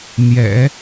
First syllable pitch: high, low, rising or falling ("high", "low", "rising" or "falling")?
low